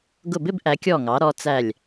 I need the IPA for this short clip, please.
ɡ ʊ˧˩ b ɪ˥˧ b ʔ æ˩˧ kʲ ɔ˧˩ ŋ ɑ˩˧ ɾ ɔ˩˧ t͡s æ˧˩ lʲ

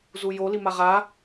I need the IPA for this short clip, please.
z u j o l i m a ʁ a

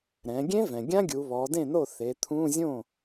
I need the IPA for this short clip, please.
ɾ ɛ̃˩˧ ɡʲ ẽ˦˥ v ɛ̃˩ ɡʲ ã˦˥ ɡʲ u˩˧ β ɔ˩˧ d ẽ˥˩ n o˥˩ θ e˩˧ t̪ʰ ũ˧˥˧ zʲ õ˥˩

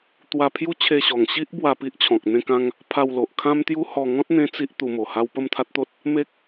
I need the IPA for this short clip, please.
t̪ w a˧ pʰ j u˦ t͡ɕʰ e˧ ɕ ɔ˨˩ ŋ ɕ i˦ ʔ b w a˧ p i˦ ʔ t͡ɕʰ ɔ̃˨ k̚ n̪ ẽ˥˧ k ã˦ ŋ | pʰ a˧ w l o˨ ʔ kʰ ã˦ m t̪ j u˦ h ɔ˧ ŋ ɔ̃˦ t̚ n̪ ẽ˦ t͡s i˦ ʔ t̪ u˧ m o˨˩ h a˦ w p ə˥˧ m t̪ʰ a˦ t̚ t̪ o˦ t̚ | m e˦ k̚

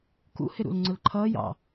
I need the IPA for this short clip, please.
k ṵ h ɪ ɾ ṵ l ŋ͡ǀ ʊ l ǃʰ ʌː j ɑ̰

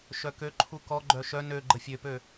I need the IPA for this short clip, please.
ʃ œ k ø ǃʰ u k ɔ ɡ͡ǃ œ ʃ œ n ø ɡ͡ǃ ə fʲ ø p ø

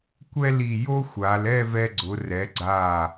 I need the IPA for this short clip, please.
kʷ ɛ˥ l i˧˩ j o˥ xʷ a˩˧ l ɛ˥˧ v ɛ˧ ɡ͡ǀ ʊ˩˧ r ɛ˩˧ ɡ͡ǀ a˧˩

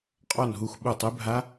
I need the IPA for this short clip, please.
qʼ ɔ˦˨ n ɦ u˦˨ x ɓ u˦˨ tˤ e˦˥ bʱ a˦˥

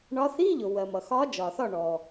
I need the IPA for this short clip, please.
ɳ ɒ˨˦ θ i˧˥˧ ʎ ʊ˩ w ɜ˩ m ʌ˩ x ɒ˨˦ d͡ʒ ɒ˩ θ ɒ˥˩ ɳ ɔ˩

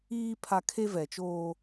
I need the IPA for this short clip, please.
iː˦ pʰ a˦ kʰ e˦ v ɛ˨ t͡ʃ oː˦

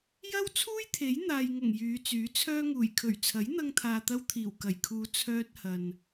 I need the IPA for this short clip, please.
j ɐ˥ w t͡sʰ uː˥ j t̪ʰ e˨˥ j n̪ aː˨ j ŋ ʊ˨˩ ŋ j yː˨˧ t͡s yː˨˥ t͡sʰ œː˥ ŋ uː˨˩ j kʰ ɵ˨˩ ɥ t͡sʰ ɐ˨˥ j n̪ ɐ˧ ŋ t̪ʰ aː˨ t̪ ɐ˧ w t̪ʰ iː˨˩ w k ɐ˨˩ j kʰ uː˨ t͡sʰ œː˧ t̚ h ɐ˨ n

